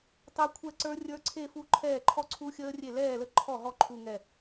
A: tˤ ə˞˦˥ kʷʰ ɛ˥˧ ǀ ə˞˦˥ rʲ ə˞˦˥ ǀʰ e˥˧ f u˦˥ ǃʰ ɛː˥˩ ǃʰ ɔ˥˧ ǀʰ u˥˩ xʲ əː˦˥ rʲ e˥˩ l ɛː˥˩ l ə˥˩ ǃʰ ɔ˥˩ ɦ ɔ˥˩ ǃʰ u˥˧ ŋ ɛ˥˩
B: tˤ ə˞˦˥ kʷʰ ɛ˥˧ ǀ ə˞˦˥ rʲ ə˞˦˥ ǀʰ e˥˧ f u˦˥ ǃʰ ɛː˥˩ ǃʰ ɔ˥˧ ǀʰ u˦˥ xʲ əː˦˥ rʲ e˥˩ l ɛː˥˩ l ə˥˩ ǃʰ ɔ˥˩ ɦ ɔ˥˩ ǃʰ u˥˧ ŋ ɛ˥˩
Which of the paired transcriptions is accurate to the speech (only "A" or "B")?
B